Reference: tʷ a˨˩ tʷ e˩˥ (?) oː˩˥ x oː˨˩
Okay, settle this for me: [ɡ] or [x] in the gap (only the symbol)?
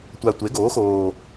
ɡ